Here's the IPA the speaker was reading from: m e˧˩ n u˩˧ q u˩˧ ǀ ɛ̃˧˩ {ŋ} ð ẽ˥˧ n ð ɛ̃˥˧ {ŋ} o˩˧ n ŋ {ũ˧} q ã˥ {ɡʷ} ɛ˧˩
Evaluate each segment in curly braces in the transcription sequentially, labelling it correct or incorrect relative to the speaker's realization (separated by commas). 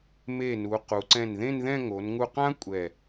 incorrect, correct, incorrect, incorrect